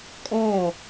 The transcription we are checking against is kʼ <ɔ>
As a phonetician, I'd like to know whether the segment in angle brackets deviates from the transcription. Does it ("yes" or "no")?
no